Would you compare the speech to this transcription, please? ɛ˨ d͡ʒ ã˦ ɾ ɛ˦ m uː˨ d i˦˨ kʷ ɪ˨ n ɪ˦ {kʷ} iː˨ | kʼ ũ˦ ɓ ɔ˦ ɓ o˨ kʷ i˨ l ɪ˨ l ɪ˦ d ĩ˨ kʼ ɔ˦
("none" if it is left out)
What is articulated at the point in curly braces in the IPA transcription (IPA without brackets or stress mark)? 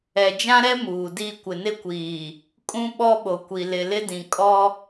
kʷ